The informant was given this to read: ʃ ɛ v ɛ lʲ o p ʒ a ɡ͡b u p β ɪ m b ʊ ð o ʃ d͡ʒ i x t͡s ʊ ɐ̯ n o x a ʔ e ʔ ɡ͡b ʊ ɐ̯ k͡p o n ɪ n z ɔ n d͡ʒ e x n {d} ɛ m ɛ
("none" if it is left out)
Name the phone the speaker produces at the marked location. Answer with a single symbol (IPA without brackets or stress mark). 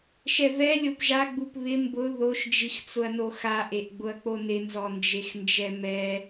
d͡ʒ